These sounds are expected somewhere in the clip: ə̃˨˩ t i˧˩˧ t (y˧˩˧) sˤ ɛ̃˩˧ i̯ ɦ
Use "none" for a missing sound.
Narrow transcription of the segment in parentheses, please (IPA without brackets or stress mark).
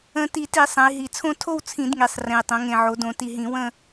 i˧˩˧